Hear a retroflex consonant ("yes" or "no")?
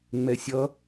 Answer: no